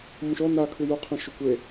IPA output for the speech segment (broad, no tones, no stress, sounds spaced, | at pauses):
m ũ ʃ ɔ n a kʰ ɯ j u qʰ ɛ̃ ʃ o kʷ e